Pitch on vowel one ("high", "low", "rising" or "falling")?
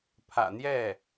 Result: low